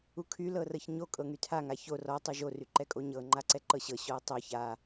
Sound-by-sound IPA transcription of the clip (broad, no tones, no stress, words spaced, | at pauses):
ukʰy lɤrɤçɲo kʼɤŋytʰa ŋaço rɔ tˤoʒo ryǃɛkʼoɲɤ ŋ͡ǃaǀɛǃɤɕɤ ɕɔə̯tˤo ça